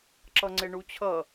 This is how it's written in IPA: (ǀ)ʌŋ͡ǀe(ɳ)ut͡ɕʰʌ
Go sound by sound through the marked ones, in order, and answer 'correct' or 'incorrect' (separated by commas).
incorrect, correct